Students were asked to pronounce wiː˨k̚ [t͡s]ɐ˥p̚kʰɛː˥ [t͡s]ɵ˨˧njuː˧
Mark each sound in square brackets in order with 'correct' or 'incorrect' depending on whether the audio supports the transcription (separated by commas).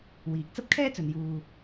correct, correct